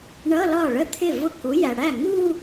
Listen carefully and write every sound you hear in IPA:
ɳʌ˧˥˧lɒ˥˩ɭə˥˧ t̪ʰɪ˥˩vʊ˥˩ku˨˥jæ˨ ɽæ˥˩ŋu˥˧

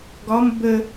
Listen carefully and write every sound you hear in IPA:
ɡɒm bə

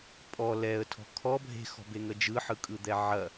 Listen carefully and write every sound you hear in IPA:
pʼɔ lɛə̯tʰɔ̤ kʰɔ bʱe̤xɔ̤beŋə d͡ʒɯħɯkʼɯd̪ɛ ʕɐ

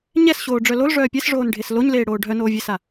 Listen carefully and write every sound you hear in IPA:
ɲɛsɕoːɖ͡ʐœ lolʐœː pʲɛsʐoːnɖʱes loɲleːɽoː ɖʱœnoːvʲesa

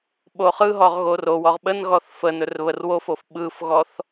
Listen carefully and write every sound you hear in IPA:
ɓoχɯɦɔʁ ɣorowɔʁ ɓənɣɔθ fə nɵrβərwofof ɓɯfɣɔθ

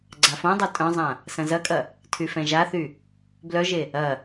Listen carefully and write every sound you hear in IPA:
ɡ͡ǀafõdˤo tʼœ̃zˤã | sɐ̃zɐkʼɐ | tʰyfɛ̃ʒaθy | blœʒe | ɐ

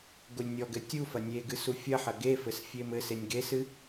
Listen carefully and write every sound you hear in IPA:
ɡolʲnʲɔɡɘ tʲufɐ nʲeɡɨ sufʲɐħɐ ɡefɘs fʲemɘsenʲ ɡesɨ

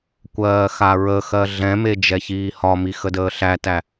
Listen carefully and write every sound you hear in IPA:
kʷɜːxaɹəxɜ ɮɛ̃me d͡ʒɛçiːhɒmi xədəːɬætæ

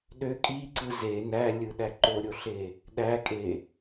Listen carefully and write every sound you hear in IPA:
ɗø kʼiǀɯ ze nælʲɯɗæ ǃoɾʲoɬe | ɗækʼe

